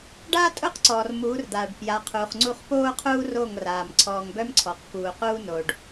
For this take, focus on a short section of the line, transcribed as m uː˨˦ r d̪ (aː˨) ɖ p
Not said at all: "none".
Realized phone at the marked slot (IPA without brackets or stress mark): aː˨